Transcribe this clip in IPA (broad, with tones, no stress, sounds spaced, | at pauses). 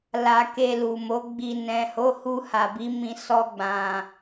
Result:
l a˧ k e˧ l u˨ m o˨˦ ɡ͡b i˧ n ɛ̃˨ h o˨˦ h u˧ h a˨ b i˨˦ m ĩ˧ s ɔ˧ ɡ͡b ã˨